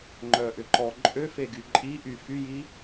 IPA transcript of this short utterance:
ŋ͡ǃ œ ʔ ʏ ǃ ɔ ǃʼ ø f e ɡ y ǃʼ i ʔ y f y j i

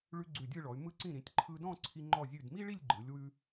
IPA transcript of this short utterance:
ɭ ʉ˧ ɡ͡ǀ ʉ˧˩ dʲ ɯ˥˧ ɭ ɔ˩˧ y̯ m ɯ˧ ǀ ĩ˧˩ ɾ ĩ˩˧ tʲ ǃʰ ɯ˧ d ɔ̃˥˧ ǀʰ i˧ ŋ͡ǃ ɔ˧˩ zʲ ʉ˧˩ d m i˥ ɭ i˥˧ lʲ ɡ͡ǃ ɯ˩˧ lʲ w ʉ˧

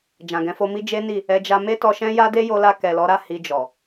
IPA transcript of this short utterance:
d͡ʒ ã˨ ɡ ɛ̃˨˦ f o˧ m i˦ d͡ʒ e˦ n i˦˨ | ɛ˧ d͡ʒ a˧ m e˦ t ɔ˧ ʃ ɛ̃˦ j a˦ d e˦ j o˧ l a˧ k ɛ˨ l ɔ˨˦ ɾ a˦˨ h i˧ d͡ʒ ɔ˨

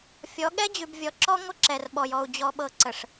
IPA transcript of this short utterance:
fʲ ɔ˨˦ ɠ ɛ˦ d͡ʑ ʉ˨ b vʲ ɔ˨ ǁ ɔ˦ ŋʷ ə˦ ǁ ɛ˨ r ɓ ɔ˨ j ɔ˨ u̯ d͡ʑ ɔ˨ ɓ ɤ˨ ǀ ə˨ ʂ

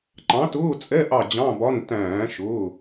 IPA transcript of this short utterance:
ǃ ɑ̃˨˥ t ʊː˧˥˧ t͡sʼ ɛ˧˥˧ ʔ ɑ˦˨ d͡ʑ ɑ̃˧˥˧ b ɒ˧˥˧ n t æ̃ː˧˩˧ ʃ ʊː˩˧˩

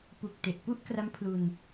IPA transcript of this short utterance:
p u˨˩ k̚ t e˨˩ ʔ p u˥˩ ʔ k r a˦˥ m pʰ l u˧ n

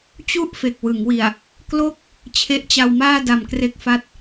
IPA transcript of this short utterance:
t͡ɕ u˥˩ ʔ f e˨˩ k̚ w ɯ˩˦ ŋ w i˨˩ a̯ | k l o˥˩ k̚ | t͡ɕʰ e˦˥ ʔ t͡ɕ a˧ w m aː˥˩ d a˨˩ m k r e˦˥ k̚ f a˦˥ t̚

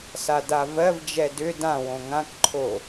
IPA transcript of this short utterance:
s a d a v ɜ v d͡ʒ ɛ d ʏ d ã w õ ŋ ã k ǃʰ o

